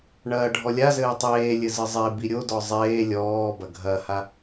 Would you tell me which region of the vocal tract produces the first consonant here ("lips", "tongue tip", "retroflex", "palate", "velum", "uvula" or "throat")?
retroflex